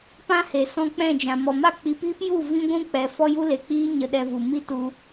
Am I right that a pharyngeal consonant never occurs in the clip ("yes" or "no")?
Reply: yes